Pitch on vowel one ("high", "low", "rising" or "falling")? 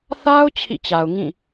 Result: high